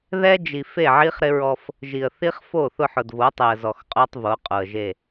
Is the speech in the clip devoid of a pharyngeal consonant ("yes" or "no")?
no